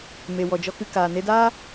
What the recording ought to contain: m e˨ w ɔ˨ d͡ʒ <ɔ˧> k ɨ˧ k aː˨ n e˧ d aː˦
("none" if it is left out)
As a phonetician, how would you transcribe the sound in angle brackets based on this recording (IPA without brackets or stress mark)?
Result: ɔ˧